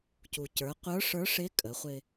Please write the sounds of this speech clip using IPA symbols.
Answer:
c u˩ c ə˞˩˧ qʷ ə˞˧˥ ʂ ə˞˧˥ ʂ ɪ˧˥ kʼ ə˩˧ χʷ ɪ˧

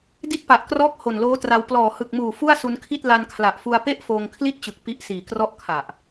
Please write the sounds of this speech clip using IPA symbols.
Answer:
d i˦˥ t̚ p a˨˩ ʔ k r ɔː˦˥ k̚ h o˨˩ n l oː˦˥ t r a˧ w p l ɔː˨˩ h ɯ˨˩ k̚ m uː˨˩ f u˥˩ a̯ s u˧ n kʰ i˥˩ t̚ l a˧ n kʰ l a˨˩ ʔ f u˧ a̯ p e˥˩ ʔ f oː˧ ŋ kʰ l i˥˩ t̚ t͡ɕ ɯ˨˩ k̚ p i˦˥ ʔ s iː˨˩ k r ɔ˥˩ ʔ kʰ a˨˩ ʔ

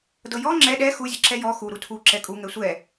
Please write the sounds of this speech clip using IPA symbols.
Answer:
d ɤ j ɔ ŋ͡ǁ ɛ ɗ ɛ x u zʲ ɤ ǁ ɛ j ɔ x u ɾ u tʰ u ǁ ɛ kʼ u ŋ ɛ sʷ ɛ

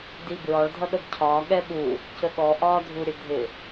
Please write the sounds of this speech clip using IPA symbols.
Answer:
d i b ɹ ɒ ɭ dʱ ʌ ɗ ə b cʰ ɒː ɠ ɛ ɓ u | c ə ɠ ɔ ʔ ɒː dʱ u ɾʲ ə dʱ ɪ

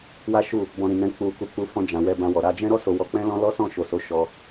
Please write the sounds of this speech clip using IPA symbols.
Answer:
w a˦ ʃ u˦˨ | b ɔ̃˧ ɾ ĩ˨ n ɛ̃˧ k͡p u˧ k u˧ k͡p u˧ f ɔ̃˧ d͡ʒ ã˨ w ɛ˧ b ã˧ w ɔ˨ ɾ a˧ d͡ʒ ɛ̃˦ ɾ ɔ˦ s o˧ w ɔ˧ k͡p ɛ̃˦ l ɔ̃˦ l ɔ˦ s ɔ̃˦˨ ʃ o˨ s o˨˦ ʃ ɔ˧

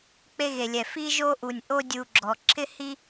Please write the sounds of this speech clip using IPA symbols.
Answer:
k͡p e˦ ɣ e˨ lʲ ɛ˨ f i˦ ʒ o˦ ʔ u˨ nʲ ʔ o˦ dʲ u˨ ɡ͡ǁ ɔ˨ ǁʰ ɪ˦ h i˦

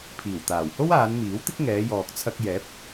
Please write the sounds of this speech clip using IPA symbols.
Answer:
pʰ iː˨˩ w t̪ aː˨˩ w h o˥ w aː˨˧ n m iː˨˥ w t̪ ɪ˥ k̚ ŋ ɛː˨˧ j ɔː˨ k̚ t͡sʰ ɐ˧ k̚ j ɛː˨˥ p̚

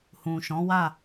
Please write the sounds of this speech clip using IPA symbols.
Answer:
h ũ˨ ʃ ɔ̃˨˦ w a˦˨

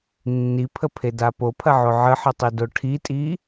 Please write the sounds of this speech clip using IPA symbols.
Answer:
nː i pʰ ə pʰ e d a p o pʰ ɐ ʕ o ʕ ə ħ ɤ tˤ i d o ʈʰ i tʼ i

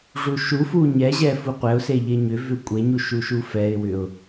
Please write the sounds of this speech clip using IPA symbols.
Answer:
ʐ u ʃ u f u ɲ ɛ ʑ ɛ f u qʷ ɛ ʊ̯ s e ʎ e ɲ ʏ v ʏ kʷʼ e ɲ u ʃ u ʃ u f ɛ ɪ̯ w ʏ ʊ̯

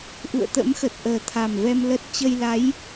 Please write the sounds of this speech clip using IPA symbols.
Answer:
ʔ ṵ˧˨ ə̯ t̪ ə̰˧˥ m x ə˨˩ t̚ ʔ əː˨˩ t̪ʰ a˨˩ m v ɛ˧ m l ə˦˥ t̚ t͡ɕ ə˧ j l a˨˦ j

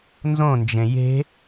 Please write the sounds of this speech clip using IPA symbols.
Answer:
n z õ n d͡ʒ ẽ j e̤

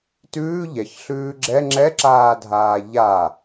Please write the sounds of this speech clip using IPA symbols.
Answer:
t ʉː ʎ ɛ ç ɬ ʉː ɡ͡ǁ ɛ ŋ͡ǁ ɛ ǁ aː dʱ aː ʎ a

